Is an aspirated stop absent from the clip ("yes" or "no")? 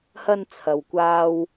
no